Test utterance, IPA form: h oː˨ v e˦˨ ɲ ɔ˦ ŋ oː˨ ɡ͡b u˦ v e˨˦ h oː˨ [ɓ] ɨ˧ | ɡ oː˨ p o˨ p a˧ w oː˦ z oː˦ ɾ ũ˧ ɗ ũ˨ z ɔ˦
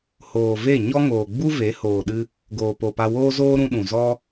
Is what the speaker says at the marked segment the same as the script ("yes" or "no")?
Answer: no